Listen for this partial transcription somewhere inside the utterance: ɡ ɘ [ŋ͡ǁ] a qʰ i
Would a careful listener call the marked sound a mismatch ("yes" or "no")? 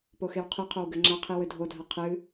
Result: no